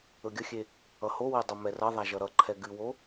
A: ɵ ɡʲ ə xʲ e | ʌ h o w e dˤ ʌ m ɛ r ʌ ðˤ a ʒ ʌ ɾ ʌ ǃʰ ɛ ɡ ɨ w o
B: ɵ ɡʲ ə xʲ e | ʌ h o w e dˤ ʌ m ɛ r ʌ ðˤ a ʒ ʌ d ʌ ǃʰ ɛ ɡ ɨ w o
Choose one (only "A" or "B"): A